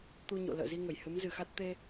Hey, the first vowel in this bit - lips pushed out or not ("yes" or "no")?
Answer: yes